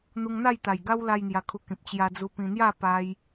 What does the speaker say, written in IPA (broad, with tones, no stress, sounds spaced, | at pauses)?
n̪ u˧ ŋ n̪ a˥˧ j t̪ a˨˩ j ɡ a˦ w l a˦ j n̪ j a˧ kʰ u˧ k ĩ˨ p̚ t͡ɕ j a˧ d͡z u˧ p ĩ˧ n̪ j a˥˧ p a˧ j